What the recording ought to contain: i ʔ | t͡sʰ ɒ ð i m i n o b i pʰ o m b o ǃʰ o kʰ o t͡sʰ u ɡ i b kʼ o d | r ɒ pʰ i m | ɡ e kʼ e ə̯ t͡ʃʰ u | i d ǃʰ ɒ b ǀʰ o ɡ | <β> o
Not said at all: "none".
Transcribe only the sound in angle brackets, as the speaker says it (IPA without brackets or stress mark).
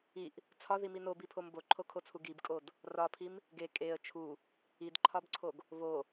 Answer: β